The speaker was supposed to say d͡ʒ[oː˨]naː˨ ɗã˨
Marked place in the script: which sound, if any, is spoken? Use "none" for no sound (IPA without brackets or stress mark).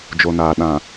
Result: o˨